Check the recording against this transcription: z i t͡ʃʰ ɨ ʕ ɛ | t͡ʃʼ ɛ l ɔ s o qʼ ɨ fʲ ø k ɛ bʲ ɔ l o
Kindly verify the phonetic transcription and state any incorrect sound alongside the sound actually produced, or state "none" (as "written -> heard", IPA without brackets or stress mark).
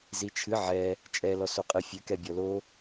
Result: none